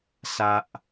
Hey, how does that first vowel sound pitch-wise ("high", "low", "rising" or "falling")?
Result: high